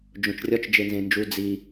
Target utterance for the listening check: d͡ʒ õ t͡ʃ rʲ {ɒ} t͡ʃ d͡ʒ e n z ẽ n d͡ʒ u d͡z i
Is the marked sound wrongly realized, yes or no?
no